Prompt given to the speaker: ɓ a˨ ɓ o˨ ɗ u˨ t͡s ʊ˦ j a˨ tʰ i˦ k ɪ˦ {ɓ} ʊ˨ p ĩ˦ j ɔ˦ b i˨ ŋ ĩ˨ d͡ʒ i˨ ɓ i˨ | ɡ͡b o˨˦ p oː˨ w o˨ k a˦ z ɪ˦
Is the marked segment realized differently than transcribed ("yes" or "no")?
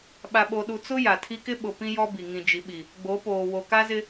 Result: no